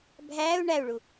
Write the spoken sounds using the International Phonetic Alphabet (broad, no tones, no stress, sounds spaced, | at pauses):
bʱ æː u̯ ɳ æ u̯ ɭ u